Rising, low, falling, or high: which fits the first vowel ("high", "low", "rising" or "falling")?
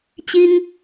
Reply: high